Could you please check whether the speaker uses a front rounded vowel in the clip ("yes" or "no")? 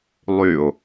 yes